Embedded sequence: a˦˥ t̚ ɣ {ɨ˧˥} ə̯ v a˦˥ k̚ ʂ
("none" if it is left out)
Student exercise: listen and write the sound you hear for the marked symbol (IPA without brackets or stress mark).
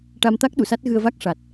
ɨ˧